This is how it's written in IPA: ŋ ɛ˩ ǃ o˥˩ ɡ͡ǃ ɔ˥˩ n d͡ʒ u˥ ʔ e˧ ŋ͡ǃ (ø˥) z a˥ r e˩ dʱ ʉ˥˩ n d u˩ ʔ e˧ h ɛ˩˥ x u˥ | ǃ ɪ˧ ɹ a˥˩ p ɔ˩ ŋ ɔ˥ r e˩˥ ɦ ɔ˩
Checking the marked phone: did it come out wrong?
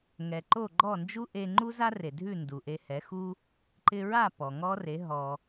yes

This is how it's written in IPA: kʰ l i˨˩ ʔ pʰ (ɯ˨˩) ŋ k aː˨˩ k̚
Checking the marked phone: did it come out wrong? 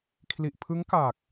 yes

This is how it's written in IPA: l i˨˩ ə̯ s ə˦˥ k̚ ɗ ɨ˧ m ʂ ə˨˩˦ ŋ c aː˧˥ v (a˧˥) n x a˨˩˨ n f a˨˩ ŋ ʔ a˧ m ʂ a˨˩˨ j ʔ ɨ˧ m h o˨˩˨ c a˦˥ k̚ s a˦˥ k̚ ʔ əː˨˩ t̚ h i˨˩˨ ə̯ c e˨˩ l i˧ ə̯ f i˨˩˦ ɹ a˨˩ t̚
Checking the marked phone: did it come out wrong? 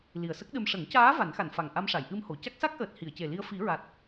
yes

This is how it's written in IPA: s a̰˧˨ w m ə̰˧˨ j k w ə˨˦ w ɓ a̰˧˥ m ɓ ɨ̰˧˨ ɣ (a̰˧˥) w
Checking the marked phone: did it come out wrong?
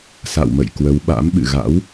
no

